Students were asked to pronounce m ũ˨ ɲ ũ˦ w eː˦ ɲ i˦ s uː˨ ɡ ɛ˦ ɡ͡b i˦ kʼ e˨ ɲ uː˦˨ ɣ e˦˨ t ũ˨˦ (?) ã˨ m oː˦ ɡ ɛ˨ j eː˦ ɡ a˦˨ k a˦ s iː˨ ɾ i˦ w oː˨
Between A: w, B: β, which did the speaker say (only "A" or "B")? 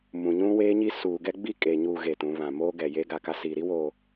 B